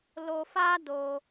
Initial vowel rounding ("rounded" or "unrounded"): rounded